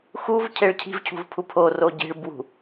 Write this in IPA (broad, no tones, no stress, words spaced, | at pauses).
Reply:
xuv cʰeɭcʰi̤v cʰṳvpʰupʰo roɟi̤ɭ bwṳ